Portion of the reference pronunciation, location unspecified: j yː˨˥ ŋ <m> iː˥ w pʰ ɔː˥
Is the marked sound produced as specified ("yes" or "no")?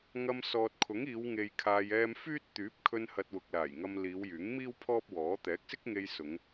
yes